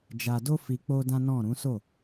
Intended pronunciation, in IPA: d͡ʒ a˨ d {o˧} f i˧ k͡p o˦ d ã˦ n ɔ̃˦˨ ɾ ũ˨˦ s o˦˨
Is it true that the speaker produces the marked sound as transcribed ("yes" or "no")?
yes